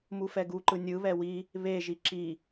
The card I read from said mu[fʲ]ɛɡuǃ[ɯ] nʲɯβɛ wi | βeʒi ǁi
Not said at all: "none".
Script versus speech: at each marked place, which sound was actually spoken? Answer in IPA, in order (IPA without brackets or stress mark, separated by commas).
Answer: f, ɯ